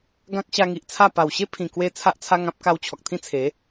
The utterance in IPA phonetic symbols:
ɡã˦k̚ɕa˧ŋi˨ʔt͡sʰa˥˧ pa˨˩wɕe˦pʰĩ˨˩kwe˧ t͡sʰa˦ʔt͡sʰa˦ŋã˦p̚ ka˧wt͡ɕʰɔ˨k̚t̪ʰĩ˦t͡sʰe˨˦

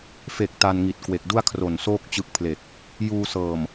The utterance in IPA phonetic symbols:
fe˨˩k̚ ta˧nŋi˨˩t̚ kwe˨˩k̚du˥˩a̯ kʰro˨˩nsoː˥˩k̚ t͡ɕɯ˦˥k̚pʰle˨˩k̚ | juː˧sɤː˨˩m

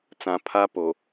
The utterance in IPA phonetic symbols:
t͡sã˨pʰa˦po˨

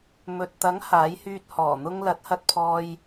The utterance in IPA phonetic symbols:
mɵ˨t̚t̪ɐ˨˥ŋ haː˨˥jhyː˧t̚ hɔː˨˩n̪ʊ˧ŋ lɐ˨˥t̚hɐ˧t̚pʰɔː˧j

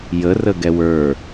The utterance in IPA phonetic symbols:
jərə ɡɛwə˞

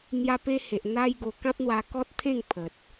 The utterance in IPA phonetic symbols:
n̪ja˧pe˧he˨ʔ n̪a˦jɡo˧ kã˦p̚n̪wa˧ kɔ˦t̚t̪ʰẽ˥˧ŋ pʰə˨t̚

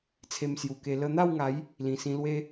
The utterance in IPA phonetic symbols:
t͡sʰe˧msju˨˩ke˧ lə˧n̪a˥˧wŋa˨˦j | lĩ˨˩sĩ˧lwe˦

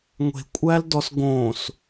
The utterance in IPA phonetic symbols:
ŋʷe̤kʷʼældɔs ɡõs

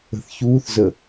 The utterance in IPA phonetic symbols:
ə̤θçuːθzə

